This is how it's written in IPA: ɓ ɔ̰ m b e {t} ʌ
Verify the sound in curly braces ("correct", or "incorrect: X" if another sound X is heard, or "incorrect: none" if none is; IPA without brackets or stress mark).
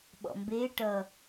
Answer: incorrect: ʈ